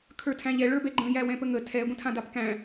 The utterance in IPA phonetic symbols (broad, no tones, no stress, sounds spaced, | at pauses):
kʰ ə˞ tʰ æ̃ ʎ ɛ ɭ ə˞ b ɛ ɡ͡ǃ ə̃ j æ w ɛ̃ p ə ŋ ə tʰ ɛ ɡʷ ə̃ tʰ ã d a p k æ̃